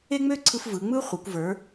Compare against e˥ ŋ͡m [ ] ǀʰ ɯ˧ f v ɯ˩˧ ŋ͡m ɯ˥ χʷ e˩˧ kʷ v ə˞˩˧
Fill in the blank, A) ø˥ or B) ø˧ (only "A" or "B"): A